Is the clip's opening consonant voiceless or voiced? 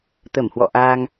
voiceless